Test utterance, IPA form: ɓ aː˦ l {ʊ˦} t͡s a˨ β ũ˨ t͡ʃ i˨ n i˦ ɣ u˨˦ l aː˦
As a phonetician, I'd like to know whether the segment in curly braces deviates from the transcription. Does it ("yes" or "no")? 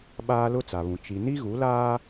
no